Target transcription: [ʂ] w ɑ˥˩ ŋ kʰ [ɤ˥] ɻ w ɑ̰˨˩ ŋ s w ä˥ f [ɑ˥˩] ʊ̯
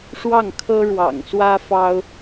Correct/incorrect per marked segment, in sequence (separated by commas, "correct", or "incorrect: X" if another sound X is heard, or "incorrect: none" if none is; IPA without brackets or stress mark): correct, correct, incorrect: ɑ˥